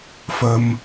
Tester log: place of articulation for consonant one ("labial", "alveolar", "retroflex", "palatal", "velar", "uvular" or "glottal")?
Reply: labial